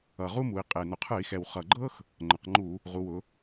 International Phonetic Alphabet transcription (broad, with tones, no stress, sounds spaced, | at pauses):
ʌ˨˩ ʁ u˥ m u˩˧ i̯ qʼ e˨˩ n ʊ˨˩ qʰ ɯ˧˩˧ i̯ x ɛ˨˩ w χ ʌ˨˩ ɡ͡ǃ ɤ˥ x | ŋ͡ǃ ə˩˧ q ŋ͡ǃ u˧˩˧ | ʁ u˩˧ w ʊ˩˧